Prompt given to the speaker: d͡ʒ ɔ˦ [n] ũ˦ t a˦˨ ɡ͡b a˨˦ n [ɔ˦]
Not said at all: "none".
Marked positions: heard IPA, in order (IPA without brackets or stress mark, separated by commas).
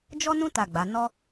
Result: n, ɔ˦